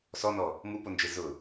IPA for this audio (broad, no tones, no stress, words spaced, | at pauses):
sɔnɔ | mupond͡ʒe zʊ